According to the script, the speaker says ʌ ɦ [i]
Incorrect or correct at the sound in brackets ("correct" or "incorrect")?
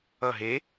incorrect